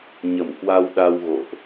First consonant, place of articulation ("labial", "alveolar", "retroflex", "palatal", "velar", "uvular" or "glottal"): palatal